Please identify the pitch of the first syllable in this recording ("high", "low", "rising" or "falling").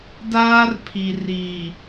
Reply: high